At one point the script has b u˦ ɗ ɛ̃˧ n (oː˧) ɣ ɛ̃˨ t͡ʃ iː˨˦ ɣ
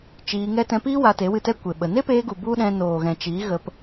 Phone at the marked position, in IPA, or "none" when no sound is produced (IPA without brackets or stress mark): oː˨